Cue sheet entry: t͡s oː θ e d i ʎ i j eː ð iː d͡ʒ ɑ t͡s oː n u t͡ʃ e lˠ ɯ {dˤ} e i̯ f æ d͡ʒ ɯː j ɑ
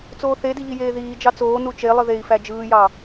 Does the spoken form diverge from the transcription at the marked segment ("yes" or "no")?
yes